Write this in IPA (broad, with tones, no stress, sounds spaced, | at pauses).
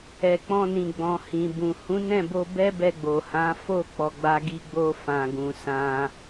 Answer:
ɛ˨ k͡p ɔ̃˧ n ĩ˨ ɡ͡b ɔ̃˨ h ĩ˨ b ũ˨ h ũ˨˦ n ɛ̃˦˨ b o˧ b ɛ˦ b ɛ˧ ɡ͡b o˨ h ã˨˦ f o˦˨ k͡p ɔ˨ ɡ͡b a˧ ɡ i˧ ɡ͡b o˧ f ã˨ ɡ ũ˨ s ã˧